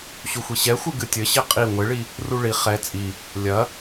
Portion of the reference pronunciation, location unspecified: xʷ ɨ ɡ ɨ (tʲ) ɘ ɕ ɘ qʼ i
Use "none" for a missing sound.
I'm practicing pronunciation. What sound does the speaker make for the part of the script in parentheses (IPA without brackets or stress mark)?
tʲ